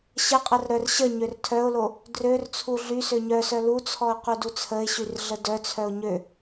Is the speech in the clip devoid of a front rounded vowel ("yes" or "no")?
no